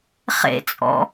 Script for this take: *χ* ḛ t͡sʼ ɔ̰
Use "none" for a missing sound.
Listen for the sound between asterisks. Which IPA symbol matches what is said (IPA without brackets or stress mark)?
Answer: χ